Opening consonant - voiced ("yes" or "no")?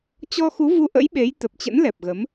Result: no